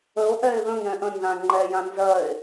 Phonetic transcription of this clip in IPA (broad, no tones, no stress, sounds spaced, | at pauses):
ə o̯ ʔ ɛ e̯ ð ə̃ ŋ ɛ̃ ʔ ə̃ n z ã ŋ͡ǃ ɛ j ã n z ɜ e̯